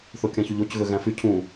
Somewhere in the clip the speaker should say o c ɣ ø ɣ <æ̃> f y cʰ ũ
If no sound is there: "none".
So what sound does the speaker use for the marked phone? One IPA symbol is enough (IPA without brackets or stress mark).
æ̃